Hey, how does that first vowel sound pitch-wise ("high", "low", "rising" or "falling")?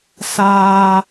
high